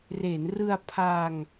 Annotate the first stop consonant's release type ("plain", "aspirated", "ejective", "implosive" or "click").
aspirated